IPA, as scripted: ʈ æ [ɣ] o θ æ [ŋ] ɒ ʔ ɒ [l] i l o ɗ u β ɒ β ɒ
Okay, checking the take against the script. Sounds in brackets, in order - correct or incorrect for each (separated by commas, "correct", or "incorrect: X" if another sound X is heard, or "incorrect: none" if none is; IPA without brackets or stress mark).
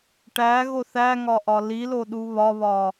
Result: correct, correct, correct